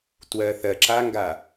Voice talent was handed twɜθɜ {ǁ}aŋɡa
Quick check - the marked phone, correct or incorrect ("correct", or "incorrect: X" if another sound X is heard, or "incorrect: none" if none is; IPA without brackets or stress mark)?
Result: correct